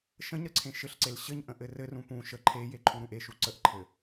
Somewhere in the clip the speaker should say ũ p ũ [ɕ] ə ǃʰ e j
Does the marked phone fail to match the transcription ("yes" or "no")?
yes